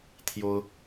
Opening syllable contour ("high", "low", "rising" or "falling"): high